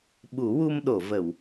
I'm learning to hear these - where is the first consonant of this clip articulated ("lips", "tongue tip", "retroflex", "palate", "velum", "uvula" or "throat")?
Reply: lips